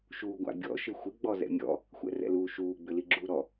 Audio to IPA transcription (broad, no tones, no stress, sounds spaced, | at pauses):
ʃ uː ɡʷ a̰ bʲ ɔ̰ ʃ ɪ xʷ ɪ ɡ͡b ɔ z ɛ̰ mʲ ɔ̰ | xʷ ɛ̰ r ɛ̰ l uː ʃ uː ɡ͡b ʏ l i ɡ͡ǁ uː ɾ ɔ